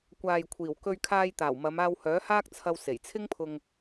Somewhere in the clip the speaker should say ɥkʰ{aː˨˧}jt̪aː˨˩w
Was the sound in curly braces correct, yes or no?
no